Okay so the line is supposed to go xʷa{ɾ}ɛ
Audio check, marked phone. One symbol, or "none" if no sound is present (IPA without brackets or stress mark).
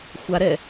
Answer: ɾ